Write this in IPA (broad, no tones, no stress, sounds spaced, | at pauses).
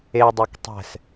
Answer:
e dˤ e k tˤ ɛ̤ s